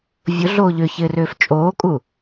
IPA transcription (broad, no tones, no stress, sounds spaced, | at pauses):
vʲ ʊ ɮ oː ʎ ʏ ç ɪː r ʏː f t͡ʃʼ oː kʼ u